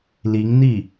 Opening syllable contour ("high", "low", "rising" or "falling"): rising